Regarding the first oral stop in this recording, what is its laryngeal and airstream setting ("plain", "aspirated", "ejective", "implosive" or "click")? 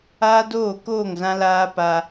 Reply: plain